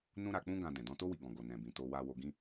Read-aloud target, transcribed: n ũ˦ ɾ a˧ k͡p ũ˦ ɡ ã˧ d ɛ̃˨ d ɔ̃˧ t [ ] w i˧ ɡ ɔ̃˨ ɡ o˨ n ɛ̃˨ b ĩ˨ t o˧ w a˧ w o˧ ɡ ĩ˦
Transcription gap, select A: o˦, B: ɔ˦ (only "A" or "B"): A